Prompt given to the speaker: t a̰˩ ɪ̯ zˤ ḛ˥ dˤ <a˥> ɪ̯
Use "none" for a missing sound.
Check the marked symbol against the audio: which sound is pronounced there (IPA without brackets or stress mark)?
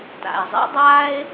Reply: a˥